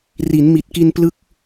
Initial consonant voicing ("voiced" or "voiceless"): voiced